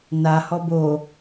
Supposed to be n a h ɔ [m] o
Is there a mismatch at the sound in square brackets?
yes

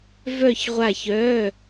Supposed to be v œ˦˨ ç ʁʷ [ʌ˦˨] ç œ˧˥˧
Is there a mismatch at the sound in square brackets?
yes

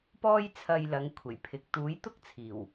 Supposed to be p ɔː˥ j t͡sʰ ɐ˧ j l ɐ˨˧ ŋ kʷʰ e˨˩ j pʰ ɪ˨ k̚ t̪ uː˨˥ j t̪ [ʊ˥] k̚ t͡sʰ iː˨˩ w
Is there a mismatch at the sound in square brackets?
no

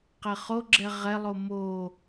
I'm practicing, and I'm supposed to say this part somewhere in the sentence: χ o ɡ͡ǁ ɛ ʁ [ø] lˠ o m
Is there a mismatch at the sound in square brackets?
yes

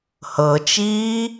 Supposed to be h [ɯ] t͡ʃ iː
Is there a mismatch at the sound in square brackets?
yes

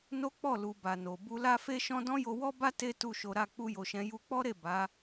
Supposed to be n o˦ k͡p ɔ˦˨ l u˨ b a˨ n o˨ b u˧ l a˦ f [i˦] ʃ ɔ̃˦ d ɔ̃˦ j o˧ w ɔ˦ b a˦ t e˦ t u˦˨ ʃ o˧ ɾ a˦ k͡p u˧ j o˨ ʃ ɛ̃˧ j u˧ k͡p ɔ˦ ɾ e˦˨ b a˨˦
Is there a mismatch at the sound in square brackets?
yes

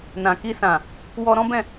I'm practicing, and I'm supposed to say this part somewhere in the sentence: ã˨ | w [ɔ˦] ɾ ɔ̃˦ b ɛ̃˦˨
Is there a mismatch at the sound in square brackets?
yes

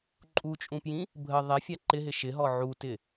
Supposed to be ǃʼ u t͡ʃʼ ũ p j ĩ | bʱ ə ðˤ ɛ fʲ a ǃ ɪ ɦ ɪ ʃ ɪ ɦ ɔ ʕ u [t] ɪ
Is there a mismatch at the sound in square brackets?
no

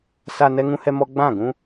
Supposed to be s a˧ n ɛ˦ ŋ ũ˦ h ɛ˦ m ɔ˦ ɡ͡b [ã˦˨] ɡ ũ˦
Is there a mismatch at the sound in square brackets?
no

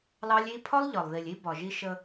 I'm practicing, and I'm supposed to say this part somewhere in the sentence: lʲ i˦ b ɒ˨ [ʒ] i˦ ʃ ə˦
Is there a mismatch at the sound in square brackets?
no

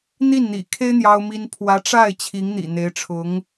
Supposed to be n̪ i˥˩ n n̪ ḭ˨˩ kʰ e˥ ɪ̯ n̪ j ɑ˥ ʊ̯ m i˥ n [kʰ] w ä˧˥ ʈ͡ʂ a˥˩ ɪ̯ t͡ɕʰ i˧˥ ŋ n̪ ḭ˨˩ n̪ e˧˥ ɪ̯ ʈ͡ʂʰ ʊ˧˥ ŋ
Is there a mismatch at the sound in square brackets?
yes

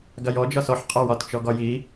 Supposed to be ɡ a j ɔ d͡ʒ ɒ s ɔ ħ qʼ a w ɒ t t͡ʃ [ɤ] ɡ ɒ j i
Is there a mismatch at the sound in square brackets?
yes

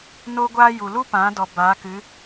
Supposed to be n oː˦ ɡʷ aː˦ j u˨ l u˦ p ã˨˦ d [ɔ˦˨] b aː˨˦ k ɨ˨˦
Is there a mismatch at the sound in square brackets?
yes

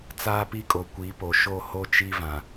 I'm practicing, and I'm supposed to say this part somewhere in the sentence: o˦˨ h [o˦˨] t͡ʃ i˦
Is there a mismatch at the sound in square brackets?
no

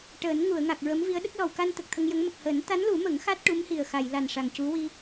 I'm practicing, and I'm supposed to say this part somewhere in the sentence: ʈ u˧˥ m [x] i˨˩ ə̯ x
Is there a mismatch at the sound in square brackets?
yes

